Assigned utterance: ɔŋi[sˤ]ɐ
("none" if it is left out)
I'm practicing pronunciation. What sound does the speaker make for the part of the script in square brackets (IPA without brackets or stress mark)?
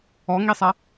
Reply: sˤ